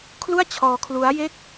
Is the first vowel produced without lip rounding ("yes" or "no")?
no